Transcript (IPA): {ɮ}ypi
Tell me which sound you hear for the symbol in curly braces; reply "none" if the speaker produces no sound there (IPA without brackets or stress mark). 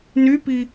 n